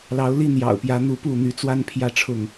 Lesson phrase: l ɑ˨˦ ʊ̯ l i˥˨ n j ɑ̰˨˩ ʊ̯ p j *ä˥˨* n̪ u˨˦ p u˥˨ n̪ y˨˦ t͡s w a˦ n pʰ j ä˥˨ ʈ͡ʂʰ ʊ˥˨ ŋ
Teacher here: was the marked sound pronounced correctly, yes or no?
no